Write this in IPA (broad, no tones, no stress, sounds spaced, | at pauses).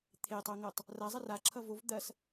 t̪ʰ e tˤ o ŋ ɤ tˤ | r a zˤ ɐ r a ǁʰ ʌ v o v d̪ ɐ s